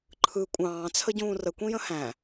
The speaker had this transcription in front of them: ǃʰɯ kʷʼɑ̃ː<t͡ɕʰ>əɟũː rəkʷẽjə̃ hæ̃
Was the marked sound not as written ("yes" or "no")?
yes